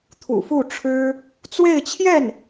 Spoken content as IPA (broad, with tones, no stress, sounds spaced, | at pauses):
t̪ʰ ṵ˨˩ f u˥˩ ʈ͡ʂʰ ɻ̩˥ | t͡s w e˥˧ ɪ̯ t͡ɕʰ j ɛ˥˩ n